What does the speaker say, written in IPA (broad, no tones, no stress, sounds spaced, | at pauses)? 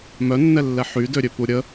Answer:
m œ nː ɛ lː ɛ ħ y d ø ɾʲ ø p u ɾʲ ə